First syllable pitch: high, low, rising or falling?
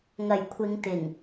low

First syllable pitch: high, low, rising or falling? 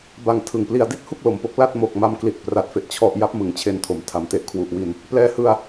low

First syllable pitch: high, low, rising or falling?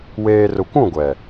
low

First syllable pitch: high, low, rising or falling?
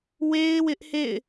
high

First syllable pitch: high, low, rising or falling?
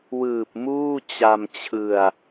low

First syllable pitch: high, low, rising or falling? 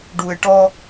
low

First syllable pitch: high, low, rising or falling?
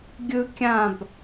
high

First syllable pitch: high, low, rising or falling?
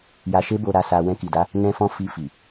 low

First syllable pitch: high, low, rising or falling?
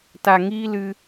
low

